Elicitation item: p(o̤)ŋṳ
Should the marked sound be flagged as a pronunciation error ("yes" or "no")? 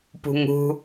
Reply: yes